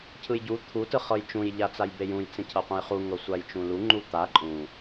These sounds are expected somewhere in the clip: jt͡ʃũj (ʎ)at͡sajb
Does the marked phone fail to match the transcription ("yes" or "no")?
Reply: no